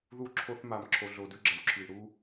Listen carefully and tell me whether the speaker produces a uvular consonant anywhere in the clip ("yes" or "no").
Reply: no